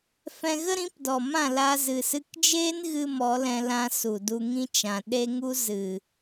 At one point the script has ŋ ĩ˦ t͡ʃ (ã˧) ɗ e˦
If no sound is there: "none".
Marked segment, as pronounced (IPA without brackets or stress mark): ã˨